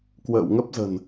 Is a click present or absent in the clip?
absent